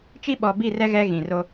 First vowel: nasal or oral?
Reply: oral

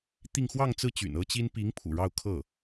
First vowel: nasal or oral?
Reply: oral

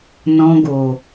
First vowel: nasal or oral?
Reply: nasal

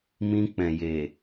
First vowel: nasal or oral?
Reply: nasal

